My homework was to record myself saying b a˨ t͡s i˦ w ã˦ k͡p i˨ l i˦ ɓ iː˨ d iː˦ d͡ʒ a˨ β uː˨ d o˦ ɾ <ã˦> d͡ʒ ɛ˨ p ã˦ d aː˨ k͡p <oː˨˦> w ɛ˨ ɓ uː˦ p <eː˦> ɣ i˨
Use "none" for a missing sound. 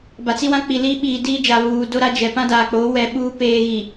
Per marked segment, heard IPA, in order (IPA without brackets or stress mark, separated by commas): a˦, oː˨˦, eː˦